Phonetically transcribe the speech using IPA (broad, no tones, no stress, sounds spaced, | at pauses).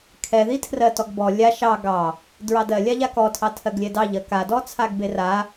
kʰ ɛ ð i tʰ r ɜ t ɔ ɡ b ɔ lʲ a ʃ ɑ ɡ ɑ | d ɹ ɑ d ɜ lʲ a ʎ a k ɔ tʰ ɑ tʰ ɜ ɡ lʲ ɛ d ɑ ʎ ɜ k a d ɔ t͡sʰ a ɡ b e r a